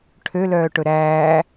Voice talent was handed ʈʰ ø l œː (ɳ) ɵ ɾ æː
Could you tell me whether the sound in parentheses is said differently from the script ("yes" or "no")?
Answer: yes